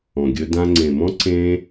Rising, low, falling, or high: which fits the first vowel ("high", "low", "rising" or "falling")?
low